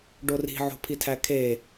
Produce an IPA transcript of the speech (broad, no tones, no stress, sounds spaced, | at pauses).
ɖ o r i̤ ʕ o̤ pʰ i tʰ æ kʰ e